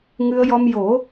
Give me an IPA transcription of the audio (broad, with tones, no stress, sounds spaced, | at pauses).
ŋ ɨ˧ ə̯ j ɔ˧ m j o˨˩˦